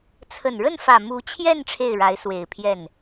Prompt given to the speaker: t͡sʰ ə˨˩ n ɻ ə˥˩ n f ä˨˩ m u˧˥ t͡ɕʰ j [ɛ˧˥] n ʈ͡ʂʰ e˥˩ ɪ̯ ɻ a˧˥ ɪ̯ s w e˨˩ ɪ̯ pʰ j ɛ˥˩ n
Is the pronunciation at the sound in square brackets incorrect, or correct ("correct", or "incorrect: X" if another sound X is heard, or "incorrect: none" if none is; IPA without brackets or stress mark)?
incorrect: ɛ˥˧